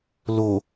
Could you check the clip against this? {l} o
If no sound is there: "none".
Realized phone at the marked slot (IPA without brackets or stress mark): l